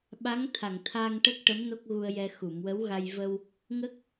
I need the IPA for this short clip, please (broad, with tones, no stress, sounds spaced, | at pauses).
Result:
ɓ a˧˥ ŋ t̪ʰ a˨˩ ŋ t̪ʰ a˧ ŋ ʈ ə˦˥ k̚ ʈ ə˧˥ m n o˦˥ k̚ ɣ u˧ ə̯ j ɛ˧ x u˨˩˨ m w ə˧˥ w ɣ a˧ j v ə˧ w | ŋ ə˦˥ k̚